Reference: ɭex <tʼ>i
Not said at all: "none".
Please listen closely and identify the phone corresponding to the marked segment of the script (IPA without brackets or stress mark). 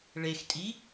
tʼ